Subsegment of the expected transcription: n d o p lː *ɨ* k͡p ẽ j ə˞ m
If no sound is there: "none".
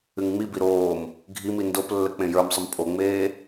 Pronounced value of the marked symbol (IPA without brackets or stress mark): ə